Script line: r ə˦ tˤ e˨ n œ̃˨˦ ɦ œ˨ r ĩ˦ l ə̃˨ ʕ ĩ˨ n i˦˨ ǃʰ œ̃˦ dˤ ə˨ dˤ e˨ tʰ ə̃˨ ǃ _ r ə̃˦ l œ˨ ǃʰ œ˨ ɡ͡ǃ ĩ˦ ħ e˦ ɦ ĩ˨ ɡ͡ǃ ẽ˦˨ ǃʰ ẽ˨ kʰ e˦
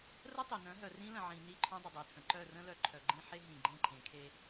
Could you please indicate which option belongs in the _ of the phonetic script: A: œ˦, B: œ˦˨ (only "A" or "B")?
B